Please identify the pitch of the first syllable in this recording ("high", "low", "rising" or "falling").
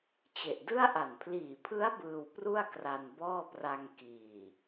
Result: low